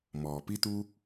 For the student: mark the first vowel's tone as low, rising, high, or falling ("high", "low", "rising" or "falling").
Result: low